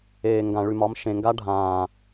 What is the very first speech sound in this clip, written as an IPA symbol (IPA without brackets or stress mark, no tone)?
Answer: eː